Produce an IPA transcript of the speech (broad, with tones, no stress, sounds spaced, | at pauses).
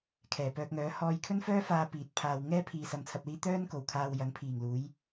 kʰ ɛː˨˩ p œː˧ k̚ ŋ œː˨˥ h ɔː˧ j kʰ ɵ˥ n f œː˥ f aː˧ p iː˨˥ t̚ pʰ aː˧ w ŋ ɛː˥ pʰ iː˨ s ɐ˧ m t͡sʰ ɐ˧ p̚ l iː˥ t̪ œː˥ n k o˨˩ w kʰ aː˧ w j ɐ˨˥ ŋ pʰ iː˨˩ ŋ l uː˨˥ j